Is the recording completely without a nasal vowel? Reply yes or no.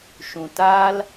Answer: no